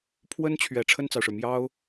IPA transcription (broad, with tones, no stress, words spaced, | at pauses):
pʰwə˥nt͡ɕʰɥɛ˨˩ ʈ͡ʂʰə˥˩nt͡sɑ˩ʊ̯ʂɻ̩˩ mjɑ˥ʊ̯